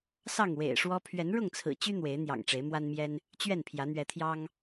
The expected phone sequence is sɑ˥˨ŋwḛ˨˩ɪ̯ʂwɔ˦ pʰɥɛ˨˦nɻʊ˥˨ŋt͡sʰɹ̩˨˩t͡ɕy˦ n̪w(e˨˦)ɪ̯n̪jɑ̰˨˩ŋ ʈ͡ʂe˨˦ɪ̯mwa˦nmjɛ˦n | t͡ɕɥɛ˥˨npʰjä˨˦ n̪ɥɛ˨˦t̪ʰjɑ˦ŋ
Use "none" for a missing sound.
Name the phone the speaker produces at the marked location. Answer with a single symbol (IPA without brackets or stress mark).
e˨˦